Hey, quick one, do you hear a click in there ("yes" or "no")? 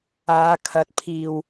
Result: no